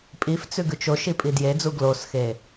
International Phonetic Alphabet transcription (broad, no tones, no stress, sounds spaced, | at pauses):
pʼ i f t͡s ʉ ɡ ʉ t͡ʃ o ʃ i pʼ i d j e d͡z u ɡ l o s x e